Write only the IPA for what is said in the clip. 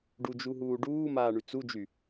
ɖud͡ʒuɦuː ɖuːmaːɳy t͡sud͡ʒy

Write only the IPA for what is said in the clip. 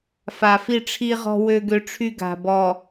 fa˨ fi˦˨ʈ͡ʂʰi˦ʁɔ̤˦ wø˦ɡø˦ʈ͡ʂʰy˦ ɡa̤˨ bɔ˨

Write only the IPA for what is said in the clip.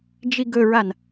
d͡ʒiɡɵɹan

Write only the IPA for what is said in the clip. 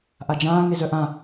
ʔad͡ʒãː ŋezœʔã

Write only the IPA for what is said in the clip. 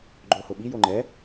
ɡ͡ǃohʊɓi joŋ͡ǃɛ

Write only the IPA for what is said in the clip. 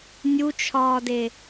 nʲut͡ʃʰɒːde

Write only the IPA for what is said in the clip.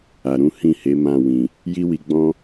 a˨ ɾũ˨˦ hĩ˦˨he˨˦ mã˦˨ wĩ˨ | ji˦wi˧ɡ͡bɔ̃˦

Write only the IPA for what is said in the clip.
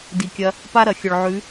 di˨kʲɐ˧ | pa˦ɾɐ˨xʲɵ˨ɭ ʕʉ˨˦

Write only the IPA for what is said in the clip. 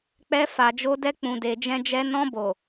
k͡pɛ˧fa˨d͡ʒo˧dɛ˧ k͡pũ˨de˨d͡ʒɛ̃˧d͡ʒɛ˧ nɔ̃˧bo˨

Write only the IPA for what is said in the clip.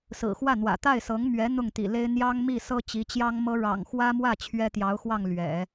sɹ̩˨˩xwä˥˩n̪wä̰˨˩ t̪a˥˩ɪ̯sɤ˧˥ŋmɥɛ˧˥ n̪ʊ˥˩ŋt̪ḭ˨˩le˥ɪ̯ n̪jɑ˥ŋ mi˥˩sɤ˥ t͡ɕi˧˥t͡ɕjɑ˥ŋmɤ˥ ɻɑ̰˨˩ŋxwä˥mwä˥˩ t͡ɕʰɥɛ˥t̪jɑ˧˥ʊ̯xwɑ˥˩ŋ lɥɛ̰˨˩˦

